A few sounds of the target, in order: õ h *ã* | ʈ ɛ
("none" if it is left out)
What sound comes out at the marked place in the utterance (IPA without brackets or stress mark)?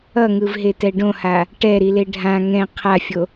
a